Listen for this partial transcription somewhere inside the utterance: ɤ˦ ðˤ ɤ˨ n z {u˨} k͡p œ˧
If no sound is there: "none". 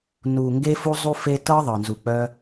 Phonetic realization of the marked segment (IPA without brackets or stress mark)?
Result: u˨